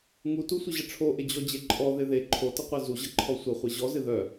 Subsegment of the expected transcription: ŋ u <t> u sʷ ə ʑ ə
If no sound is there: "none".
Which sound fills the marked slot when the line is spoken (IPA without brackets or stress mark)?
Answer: t